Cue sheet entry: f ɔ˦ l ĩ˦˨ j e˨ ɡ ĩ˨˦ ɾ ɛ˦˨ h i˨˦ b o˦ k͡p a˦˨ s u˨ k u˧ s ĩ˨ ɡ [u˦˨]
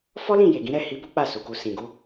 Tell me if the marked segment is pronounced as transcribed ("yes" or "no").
no